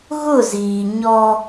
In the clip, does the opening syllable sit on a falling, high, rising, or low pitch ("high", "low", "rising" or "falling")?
falling